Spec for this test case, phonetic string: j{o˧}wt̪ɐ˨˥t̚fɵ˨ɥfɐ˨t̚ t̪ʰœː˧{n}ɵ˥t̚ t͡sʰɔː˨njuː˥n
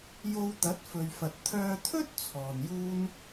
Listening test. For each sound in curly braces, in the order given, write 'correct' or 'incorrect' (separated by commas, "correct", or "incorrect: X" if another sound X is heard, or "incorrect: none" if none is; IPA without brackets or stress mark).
correct, incorrect: t̪ʰ